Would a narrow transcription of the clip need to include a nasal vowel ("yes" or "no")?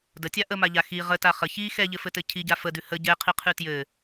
no